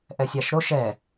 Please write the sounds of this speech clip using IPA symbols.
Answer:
ʔ ɛ sʲ a ʃ ɾ o ʃ ɛ

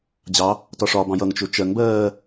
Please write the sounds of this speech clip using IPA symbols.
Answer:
d͡ʑ ɑ | t ɒ ʂ ɒ b ɑ̃ j ʌ ŋ t͡ʃ ʊ t͡ʃ ɜ ŋ b ɜː

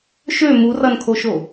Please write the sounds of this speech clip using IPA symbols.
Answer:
ʃ ø m u r ʌ n kʰ o ʃ o

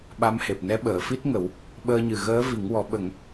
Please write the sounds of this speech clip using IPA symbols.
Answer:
ɓ a˧˥ m h e˨˩ p̚ n ɛ˧˥ ɓ əː˨˩˨ f i˦˥ t̚ ŋ ə˨˩˦ w | ɓ əː˧ ɲ ɨ˨˩ ɣ əː˧˥ v i˨˩˦ ŋ w ɔ˨˩˦ ɓ ə˨˩˦ ŋ

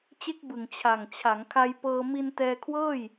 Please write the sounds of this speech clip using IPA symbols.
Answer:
t͡ɕ e˦˥ k̚ b ɯ˨˩ ŋ t͡ɕʰ a˨˩ ŋ t͡ɕʰ a˩˦ ŋ kʰ a˧ j p ɤː˧ m i˧ n t ɛː˧ kʰ w ɤː˥˩ j

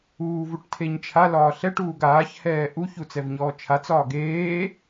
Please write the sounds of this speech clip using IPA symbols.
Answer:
uː v u ʈ tʰ e ɲ t͡ʃʰ a l ɒː ɬ ɛ ʈ uː ɡ aː ç h ɛː ʔ u ç u t͡s ɛ v ɲ ɔː t͡ʃʰ a t͡s ɒː ɡ eː

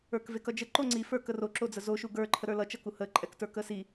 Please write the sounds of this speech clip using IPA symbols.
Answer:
ə˞ k v e k ʌ d͡ʒ ə ǃ o ŋ͡ǀ i f ə˞ k ə r o ǁ o d͡z ə z o ʃ u ɡ ə˞ ǃʰ ə ɾ ə˞ l ʌ t͡ʃ ʌ k u h ə ǃʼ ɛ k t ə˞ k ə s i

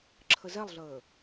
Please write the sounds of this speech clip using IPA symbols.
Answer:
ǁʰ ə z ɛ lˠ ɮ əː

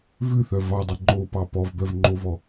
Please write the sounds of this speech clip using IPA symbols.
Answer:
v ʉ θ œ v ɑ dˤ i ŋ͡ǃ o p ɑ p ɔ v b œ v ŋ͡ǃ o v ɔ

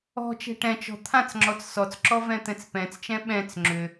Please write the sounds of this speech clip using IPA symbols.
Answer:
ɔ̤ t͡ʃ ɛ̤ ʈ ɛ̃ t͡ʃ ɔ̤ t̪ʰ ã t͡s ŋ͡ǁ ɔ t͡s s ɔ t͡s ǁ ɔ v ɛ̃ t̪ ɛ̃ t͡s p ɛ̃ t͡s t͡ʃ ɛ̃ ɓ ɛ̃ t͡s ŋ͡ǁ ʏ

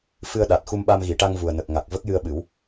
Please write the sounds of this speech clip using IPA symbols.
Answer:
f ɨ˧ ə̯ ɗ a˨˩ t̚ x u˧ m ɓ a˧ m ɣ i˨˩˨ ʈ a˧ ŋ v u˨˩ ə̯ n ə˨˩ k̚ ŋ a˨˩ k̚ v ə˦˥ k̚ j ɨ˧ ə̯ ɓ ɨ˨˩˦ w

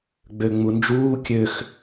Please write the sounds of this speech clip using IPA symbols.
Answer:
ɡ͡b ø ŋ͡m u n d͡ʒ uː kʲ ø x

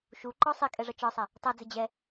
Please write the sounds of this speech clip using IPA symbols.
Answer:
ʃ u ǃ ɔ sˤ i kʼ ɛ ʐ ʌ t͡ʃ ɒ sˤ ɛ | tˤ ɛ d͡z ɪ d͡ʑ ɛ

